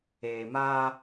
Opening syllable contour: low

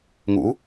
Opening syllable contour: rising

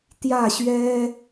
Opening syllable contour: falling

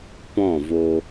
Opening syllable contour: falling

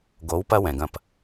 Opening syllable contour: rising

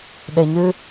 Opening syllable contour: low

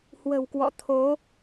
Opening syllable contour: low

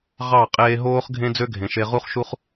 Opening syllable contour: falling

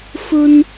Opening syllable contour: high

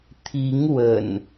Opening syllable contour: rising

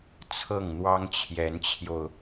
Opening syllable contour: falling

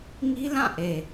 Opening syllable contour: high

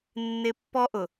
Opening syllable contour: high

